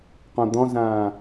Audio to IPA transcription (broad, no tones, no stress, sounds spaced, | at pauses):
q õ d̪ ɔ̃ z ãː